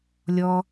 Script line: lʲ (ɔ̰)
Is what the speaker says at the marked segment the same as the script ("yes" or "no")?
no